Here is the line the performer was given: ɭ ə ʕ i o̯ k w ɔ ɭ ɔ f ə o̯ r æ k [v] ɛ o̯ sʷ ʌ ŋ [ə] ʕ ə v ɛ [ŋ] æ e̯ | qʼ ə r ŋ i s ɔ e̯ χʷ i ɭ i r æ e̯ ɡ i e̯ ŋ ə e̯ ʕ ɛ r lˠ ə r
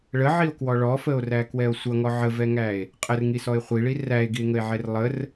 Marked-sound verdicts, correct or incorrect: incorrect: w, incorrect: ɔ, correct

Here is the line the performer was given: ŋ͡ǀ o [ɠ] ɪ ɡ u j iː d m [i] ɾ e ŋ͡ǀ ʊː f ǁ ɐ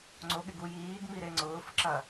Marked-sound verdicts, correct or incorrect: correct, correct

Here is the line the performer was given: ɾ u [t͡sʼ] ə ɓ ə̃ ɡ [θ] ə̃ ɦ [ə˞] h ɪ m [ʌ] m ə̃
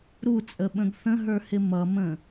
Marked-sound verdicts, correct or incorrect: correct, correct, correct, correct

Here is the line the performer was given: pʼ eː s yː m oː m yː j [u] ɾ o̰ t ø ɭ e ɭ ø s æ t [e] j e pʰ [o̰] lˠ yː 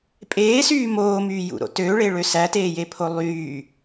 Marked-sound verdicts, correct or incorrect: incorrect: ṵ, incorrect: eː, incorrect: o

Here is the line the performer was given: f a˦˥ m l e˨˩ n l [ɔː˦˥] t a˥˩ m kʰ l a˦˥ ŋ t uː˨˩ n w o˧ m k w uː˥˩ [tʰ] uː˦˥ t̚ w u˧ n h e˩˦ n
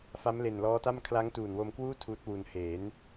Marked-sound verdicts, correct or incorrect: correct, correct

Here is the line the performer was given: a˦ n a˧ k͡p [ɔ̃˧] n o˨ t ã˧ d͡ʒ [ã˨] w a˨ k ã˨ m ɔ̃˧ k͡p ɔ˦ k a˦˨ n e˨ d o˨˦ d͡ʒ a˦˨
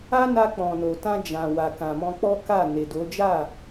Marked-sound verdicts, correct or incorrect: incorrect: ɔ̃˨, correct

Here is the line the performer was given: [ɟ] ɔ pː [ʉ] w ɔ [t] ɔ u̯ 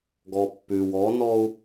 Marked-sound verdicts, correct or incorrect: incorrect: ɡ, correct, incorrect: n

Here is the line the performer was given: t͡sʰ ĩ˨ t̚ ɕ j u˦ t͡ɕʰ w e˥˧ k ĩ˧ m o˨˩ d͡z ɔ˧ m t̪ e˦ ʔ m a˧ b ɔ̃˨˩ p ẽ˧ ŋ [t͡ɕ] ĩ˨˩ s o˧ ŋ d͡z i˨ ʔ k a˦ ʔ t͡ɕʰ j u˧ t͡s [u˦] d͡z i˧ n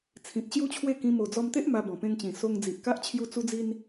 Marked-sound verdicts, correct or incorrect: correct, incorrect: u˧

